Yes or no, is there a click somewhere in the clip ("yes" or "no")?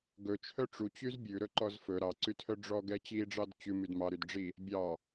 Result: yes